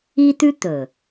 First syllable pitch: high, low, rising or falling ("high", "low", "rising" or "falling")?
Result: high